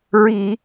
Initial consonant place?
alveolar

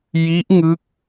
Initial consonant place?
palatal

